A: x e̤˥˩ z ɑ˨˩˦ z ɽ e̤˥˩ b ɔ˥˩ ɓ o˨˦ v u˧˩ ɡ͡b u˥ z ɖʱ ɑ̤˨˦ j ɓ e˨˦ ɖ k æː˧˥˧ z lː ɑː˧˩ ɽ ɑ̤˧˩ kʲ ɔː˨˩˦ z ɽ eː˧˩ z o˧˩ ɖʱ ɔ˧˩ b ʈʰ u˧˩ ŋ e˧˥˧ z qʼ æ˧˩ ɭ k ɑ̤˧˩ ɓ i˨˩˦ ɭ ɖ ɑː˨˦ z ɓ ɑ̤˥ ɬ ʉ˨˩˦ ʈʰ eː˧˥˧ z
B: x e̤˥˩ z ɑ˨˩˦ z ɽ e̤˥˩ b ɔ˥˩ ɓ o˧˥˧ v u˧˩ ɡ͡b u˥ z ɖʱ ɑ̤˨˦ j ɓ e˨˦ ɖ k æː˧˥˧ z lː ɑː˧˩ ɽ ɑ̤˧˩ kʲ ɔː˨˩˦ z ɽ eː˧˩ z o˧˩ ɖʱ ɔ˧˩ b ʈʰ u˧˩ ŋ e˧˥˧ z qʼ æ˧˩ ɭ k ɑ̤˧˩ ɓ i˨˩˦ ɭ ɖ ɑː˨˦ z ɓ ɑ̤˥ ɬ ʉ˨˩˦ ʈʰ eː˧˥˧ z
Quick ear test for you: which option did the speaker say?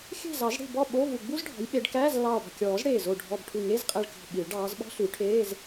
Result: B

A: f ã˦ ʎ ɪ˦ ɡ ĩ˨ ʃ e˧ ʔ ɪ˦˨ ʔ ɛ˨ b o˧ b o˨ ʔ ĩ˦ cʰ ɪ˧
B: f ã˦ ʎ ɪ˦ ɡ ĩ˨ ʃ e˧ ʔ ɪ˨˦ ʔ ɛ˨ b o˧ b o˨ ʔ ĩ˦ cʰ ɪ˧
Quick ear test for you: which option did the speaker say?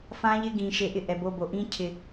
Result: A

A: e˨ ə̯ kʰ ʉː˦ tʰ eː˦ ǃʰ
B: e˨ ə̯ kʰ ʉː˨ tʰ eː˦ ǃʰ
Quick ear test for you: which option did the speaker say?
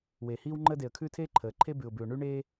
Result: A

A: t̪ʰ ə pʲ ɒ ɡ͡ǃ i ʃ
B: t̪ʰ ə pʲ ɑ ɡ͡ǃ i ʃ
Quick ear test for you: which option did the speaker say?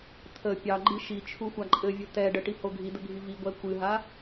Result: B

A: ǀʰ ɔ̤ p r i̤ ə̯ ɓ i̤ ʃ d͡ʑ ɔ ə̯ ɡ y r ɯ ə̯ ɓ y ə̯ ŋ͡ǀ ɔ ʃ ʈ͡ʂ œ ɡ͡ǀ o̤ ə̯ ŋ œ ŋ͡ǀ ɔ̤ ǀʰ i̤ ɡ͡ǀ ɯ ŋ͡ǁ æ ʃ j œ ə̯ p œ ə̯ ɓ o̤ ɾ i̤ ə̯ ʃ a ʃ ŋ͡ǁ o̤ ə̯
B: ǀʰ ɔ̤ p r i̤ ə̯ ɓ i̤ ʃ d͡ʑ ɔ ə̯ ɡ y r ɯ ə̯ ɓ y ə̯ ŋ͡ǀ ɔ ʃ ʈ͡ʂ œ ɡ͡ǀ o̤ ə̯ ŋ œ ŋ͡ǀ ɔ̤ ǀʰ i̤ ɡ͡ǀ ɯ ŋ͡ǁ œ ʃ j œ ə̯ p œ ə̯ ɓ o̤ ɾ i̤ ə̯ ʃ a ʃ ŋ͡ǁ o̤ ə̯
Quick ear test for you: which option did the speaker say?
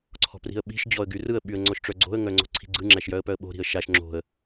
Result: A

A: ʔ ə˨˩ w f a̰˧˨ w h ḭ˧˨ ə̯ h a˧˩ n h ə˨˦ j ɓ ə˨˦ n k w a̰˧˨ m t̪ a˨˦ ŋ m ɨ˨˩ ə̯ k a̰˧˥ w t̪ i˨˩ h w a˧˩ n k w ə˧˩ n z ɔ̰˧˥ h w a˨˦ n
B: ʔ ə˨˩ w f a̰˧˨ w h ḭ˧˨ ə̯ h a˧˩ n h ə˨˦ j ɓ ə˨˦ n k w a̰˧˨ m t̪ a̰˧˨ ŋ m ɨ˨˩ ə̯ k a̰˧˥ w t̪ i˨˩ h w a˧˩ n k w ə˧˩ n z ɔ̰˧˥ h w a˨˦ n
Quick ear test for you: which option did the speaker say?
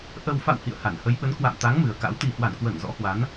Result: A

